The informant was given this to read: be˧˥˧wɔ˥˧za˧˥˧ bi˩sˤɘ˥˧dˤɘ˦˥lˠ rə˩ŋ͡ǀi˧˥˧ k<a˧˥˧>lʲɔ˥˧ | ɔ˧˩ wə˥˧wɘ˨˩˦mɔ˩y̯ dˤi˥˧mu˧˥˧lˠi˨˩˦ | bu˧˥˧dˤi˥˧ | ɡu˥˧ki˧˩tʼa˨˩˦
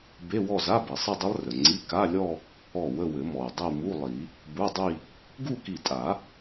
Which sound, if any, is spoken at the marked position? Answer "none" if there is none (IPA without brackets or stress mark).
a˧˥˧